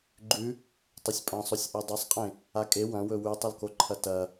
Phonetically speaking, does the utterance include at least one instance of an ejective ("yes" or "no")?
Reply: yes